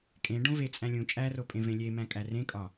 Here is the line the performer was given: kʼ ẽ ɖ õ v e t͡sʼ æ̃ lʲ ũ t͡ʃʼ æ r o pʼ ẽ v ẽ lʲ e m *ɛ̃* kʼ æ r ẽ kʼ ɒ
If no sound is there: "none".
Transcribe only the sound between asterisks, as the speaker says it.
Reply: æ̃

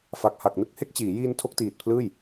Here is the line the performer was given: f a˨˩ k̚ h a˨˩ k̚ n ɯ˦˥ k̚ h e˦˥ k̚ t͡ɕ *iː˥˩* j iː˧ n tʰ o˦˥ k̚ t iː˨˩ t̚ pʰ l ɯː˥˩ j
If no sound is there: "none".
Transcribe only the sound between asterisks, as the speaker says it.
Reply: iː˩˦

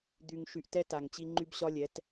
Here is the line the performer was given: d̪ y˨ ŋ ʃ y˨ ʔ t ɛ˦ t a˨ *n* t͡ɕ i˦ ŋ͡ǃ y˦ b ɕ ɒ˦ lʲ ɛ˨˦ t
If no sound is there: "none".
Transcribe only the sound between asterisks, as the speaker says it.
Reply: ŋ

